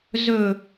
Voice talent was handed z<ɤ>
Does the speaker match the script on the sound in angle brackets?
no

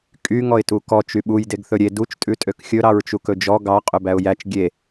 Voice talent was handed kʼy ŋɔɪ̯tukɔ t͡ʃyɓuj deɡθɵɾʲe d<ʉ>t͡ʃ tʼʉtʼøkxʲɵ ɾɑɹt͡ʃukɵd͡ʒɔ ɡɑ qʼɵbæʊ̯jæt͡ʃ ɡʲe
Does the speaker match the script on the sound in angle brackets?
no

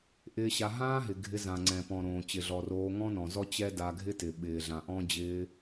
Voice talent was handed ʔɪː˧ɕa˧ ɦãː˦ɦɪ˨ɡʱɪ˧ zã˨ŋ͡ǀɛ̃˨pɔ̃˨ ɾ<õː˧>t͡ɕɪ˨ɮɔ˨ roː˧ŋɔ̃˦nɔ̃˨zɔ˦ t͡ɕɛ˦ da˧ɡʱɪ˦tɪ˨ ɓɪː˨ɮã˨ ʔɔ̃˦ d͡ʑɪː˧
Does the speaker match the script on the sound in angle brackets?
no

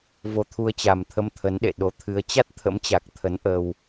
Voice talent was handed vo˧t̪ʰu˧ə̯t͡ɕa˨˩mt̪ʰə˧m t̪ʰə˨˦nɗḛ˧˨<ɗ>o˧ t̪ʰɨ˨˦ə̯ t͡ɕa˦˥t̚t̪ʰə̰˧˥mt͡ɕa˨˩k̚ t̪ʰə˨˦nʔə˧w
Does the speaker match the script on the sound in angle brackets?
yes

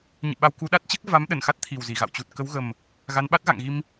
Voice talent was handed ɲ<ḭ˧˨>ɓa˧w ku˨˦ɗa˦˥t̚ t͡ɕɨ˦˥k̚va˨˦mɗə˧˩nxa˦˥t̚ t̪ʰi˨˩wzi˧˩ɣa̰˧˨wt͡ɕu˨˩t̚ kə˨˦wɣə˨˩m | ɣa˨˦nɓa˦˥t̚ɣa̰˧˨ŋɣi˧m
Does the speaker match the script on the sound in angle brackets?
no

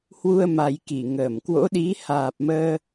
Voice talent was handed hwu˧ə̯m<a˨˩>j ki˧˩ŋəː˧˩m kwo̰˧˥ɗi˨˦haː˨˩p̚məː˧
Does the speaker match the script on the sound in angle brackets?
yes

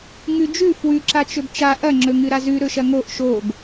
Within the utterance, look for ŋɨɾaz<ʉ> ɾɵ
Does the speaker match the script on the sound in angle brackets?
yes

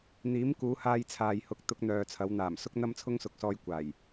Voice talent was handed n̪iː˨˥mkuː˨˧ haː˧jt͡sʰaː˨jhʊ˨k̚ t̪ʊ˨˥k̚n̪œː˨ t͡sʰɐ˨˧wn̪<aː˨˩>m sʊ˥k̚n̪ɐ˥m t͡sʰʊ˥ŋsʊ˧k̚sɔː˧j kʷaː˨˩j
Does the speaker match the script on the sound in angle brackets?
yes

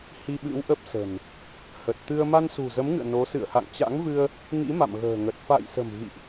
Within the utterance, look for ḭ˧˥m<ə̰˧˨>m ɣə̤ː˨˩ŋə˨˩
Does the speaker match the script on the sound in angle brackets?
no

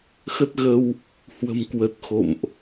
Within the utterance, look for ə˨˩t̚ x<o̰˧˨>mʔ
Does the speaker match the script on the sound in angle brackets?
yes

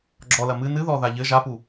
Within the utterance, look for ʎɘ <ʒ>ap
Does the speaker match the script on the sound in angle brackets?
yes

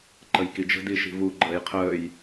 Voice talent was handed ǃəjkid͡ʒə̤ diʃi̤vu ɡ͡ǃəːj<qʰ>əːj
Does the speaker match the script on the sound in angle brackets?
yes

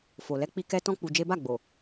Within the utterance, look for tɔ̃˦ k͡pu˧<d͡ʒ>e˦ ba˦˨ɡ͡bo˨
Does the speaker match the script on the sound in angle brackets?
yes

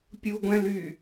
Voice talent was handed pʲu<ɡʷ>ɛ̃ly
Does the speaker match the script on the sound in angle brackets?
yes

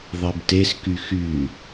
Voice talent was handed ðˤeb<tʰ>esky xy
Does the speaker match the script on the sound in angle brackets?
no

